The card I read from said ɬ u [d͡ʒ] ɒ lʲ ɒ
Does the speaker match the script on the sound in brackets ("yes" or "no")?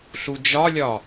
yes